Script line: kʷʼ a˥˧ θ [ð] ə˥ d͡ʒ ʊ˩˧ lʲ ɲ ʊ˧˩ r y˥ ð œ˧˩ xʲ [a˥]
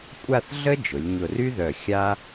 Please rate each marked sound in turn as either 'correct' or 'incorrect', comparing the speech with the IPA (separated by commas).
incorrect, correct